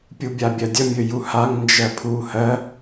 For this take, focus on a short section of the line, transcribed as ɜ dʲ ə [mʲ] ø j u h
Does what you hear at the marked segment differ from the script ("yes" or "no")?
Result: no